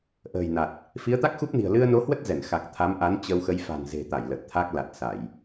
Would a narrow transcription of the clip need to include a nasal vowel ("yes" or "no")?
no